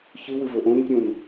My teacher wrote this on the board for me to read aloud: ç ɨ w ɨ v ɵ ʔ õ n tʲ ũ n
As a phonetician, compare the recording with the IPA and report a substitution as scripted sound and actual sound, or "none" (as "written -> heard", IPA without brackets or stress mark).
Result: none